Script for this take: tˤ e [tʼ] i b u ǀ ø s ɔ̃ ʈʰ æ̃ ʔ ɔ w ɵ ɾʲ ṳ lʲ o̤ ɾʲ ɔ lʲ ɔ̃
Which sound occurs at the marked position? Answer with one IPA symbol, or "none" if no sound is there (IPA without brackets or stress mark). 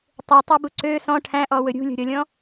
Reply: tˤ